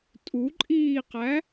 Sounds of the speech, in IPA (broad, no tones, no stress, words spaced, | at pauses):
tʼuǃʼiːqæ